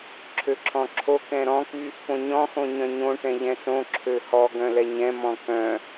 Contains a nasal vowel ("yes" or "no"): yes